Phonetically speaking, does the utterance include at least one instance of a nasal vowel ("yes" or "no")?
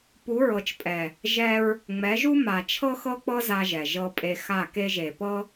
no